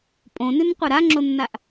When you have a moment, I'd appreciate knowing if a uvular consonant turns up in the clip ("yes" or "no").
yes